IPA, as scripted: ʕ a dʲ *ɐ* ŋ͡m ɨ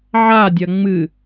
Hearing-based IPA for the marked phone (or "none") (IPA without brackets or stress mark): ɐ